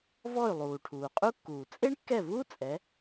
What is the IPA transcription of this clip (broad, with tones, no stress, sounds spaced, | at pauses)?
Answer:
v ɔ˥˩ y̯ lˠ uː˨˩ ʈʰ uː˨˩ qʼ u˥ kː uː˨˩ t͡sʼ e˥ ɳ kː ɛ˥˩ v uː˥ t͡sʼ ɛ˨˥